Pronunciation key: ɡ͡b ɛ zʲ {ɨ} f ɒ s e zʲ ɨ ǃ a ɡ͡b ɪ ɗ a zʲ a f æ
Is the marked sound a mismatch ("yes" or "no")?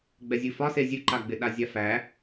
no